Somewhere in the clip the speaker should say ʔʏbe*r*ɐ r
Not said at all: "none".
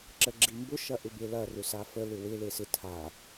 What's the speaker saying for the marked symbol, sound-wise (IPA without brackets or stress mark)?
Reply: l